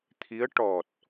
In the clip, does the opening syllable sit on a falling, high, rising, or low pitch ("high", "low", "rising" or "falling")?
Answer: rising